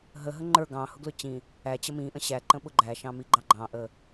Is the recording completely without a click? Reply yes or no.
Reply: no